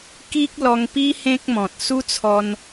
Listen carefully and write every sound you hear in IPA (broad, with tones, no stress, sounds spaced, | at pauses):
k i˦ k̚ l ɔ˧ ŋ p i˦ h ẽ˦ k̚ m ɔ̃˨ t̚ s u˦ t͡sʰ ɔ˧ n